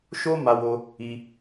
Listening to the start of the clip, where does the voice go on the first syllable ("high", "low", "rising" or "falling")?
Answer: high